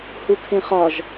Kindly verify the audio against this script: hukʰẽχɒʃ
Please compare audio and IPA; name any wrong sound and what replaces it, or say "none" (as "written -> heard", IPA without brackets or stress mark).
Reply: ʃ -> ʒ